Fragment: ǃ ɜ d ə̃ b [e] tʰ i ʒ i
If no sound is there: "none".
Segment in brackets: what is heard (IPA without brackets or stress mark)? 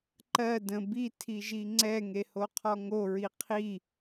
i